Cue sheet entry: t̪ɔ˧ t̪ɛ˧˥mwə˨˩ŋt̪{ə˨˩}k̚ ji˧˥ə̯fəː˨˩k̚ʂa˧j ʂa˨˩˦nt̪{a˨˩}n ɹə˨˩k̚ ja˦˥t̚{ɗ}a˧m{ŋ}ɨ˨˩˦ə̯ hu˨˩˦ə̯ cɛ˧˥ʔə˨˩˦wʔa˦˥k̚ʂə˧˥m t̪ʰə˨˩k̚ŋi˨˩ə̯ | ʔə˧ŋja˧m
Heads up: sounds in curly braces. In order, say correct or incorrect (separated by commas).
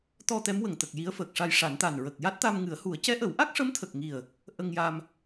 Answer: correct, correct, incorrect, correct